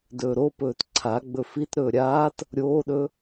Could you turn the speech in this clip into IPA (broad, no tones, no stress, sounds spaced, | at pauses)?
d ɵː ɾ o p ɵː t ǀʰ a ɡ͡b ɵ f i t ɾ ɵː ɾʲ aː t | ɾʲ oː ɗ ɵ